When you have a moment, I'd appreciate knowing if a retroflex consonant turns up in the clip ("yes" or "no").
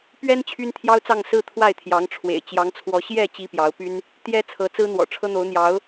yes